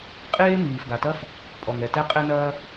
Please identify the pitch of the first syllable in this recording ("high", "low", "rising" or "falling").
high